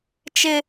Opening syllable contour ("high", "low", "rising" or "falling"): high